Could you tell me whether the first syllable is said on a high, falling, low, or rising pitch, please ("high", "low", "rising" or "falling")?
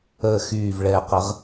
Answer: low